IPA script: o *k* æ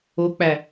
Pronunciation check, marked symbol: incorrect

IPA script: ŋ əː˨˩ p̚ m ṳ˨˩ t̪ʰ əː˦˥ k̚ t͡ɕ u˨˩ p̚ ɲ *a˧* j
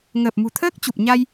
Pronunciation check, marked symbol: correct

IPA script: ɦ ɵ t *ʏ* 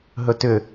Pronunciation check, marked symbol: correct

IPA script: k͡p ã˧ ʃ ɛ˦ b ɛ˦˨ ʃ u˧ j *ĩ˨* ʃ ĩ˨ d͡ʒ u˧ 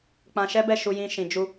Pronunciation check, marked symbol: incorrect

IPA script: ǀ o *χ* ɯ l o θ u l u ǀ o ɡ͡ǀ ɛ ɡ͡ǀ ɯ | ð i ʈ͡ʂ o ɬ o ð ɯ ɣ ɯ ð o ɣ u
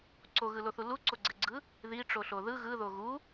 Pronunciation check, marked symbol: incorrect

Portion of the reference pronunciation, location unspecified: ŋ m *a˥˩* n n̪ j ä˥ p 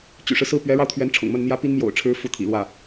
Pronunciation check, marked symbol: incorrect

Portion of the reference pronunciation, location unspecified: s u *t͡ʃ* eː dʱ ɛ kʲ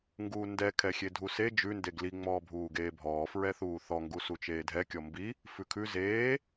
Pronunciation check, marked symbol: correct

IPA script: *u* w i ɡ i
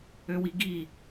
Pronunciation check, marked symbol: incorrect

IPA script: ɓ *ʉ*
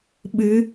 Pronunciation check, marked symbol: incorrect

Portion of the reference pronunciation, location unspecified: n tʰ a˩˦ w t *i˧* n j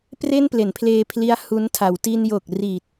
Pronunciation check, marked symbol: correct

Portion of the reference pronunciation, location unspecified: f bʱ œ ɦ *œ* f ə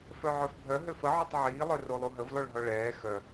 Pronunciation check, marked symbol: incorrect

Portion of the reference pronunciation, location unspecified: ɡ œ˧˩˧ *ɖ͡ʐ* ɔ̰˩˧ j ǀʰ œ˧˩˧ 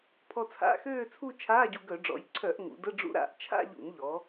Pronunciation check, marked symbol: correct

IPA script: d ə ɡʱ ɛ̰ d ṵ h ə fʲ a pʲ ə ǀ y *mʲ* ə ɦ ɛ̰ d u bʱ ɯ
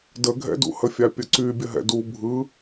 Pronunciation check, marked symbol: incorrect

